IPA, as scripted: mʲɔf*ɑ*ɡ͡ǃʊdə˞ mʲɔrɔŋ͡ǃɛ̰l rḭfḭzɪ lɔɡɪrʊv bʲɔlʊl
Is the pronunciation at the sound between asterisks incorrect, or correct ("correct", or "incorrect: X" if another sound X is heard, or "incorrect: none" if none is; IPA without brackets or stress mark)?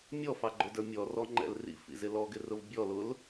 correct